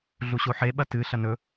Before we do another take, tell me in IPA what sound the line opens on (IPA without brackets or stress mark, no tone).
ɮ